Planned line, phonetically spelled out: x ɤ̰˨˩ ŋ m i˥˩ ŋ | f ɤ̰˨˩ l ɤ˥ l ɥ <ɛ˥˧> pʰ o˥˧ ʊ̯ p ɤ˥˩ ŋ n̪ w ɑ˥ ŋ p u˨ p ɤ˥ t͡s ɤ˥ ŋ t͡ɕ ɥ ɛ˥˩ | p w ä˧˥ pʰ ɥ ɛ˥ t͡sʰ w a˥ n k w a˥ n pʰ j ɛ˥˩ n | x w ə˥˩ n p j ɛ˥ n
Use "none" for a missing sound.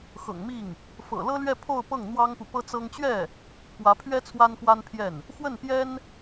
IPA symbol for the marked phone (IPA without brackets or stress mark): ɛ˥˧